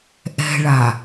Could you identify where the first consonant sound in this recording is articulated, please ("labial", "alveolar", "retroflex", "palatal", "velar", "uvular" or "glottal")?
glottal